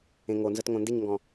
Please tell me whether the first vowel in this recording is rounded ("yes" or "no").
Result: no